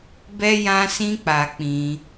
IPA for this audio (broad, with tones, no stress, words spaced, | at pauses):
bɛ˧jã˧sĩ˧ k͡pa˧k͡pĩ˧